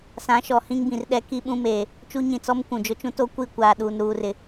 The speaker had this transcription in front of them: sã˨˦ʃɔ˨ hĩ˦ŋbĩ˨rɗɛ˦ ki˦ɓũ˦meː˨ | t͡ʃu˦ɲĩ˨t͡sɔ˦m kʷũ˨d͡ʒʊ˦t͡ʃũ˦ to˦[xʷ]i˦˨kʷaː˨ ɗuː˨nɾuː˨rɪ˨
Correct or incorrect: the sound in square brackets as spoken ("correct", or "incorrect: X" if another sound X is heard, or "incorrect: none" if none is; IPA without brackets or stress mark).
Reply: incorrect: kʷ